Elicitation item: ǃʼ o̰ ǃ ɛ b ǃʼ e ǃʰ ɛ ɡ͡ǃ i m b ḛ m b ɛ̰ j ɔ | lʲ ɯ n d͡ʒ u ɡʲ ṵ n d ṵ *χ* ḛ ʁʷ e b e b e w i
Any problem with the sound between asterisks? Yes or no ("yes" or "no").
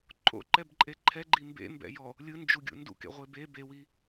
yes